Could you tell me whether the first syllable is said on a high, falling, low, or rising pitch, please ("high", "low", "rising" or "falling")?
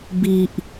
high